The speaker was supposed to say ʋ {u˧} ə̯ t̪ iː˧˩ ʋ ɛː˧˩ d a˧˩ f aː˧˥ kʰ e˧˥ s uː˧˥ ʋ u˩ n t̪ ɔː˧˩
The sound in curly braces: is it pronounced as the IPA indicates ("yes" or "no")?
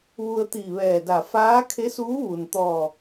yes